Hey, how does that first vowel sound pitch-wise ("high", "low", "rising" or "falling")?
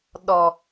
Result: low